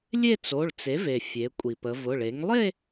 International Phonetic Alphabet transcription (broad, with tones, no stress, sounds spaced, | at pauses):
lʲ e˥˧ t͡s o˩˧˩ ɭ t͡s e˩˥ v e˩ fʲ e˩˧ kʷʼ i˩ p ə˩˧ v ʊ˩˧˩ ɭ e˩˥ ŋ lˠ e˥˧